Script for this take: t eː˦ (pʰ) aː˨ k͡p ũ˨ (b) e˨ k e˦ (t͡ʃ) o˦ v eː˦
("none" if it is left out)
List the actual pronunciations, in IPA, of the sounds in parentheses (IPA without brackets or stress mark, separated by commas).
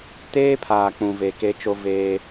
pʰ, v, t͡ʃ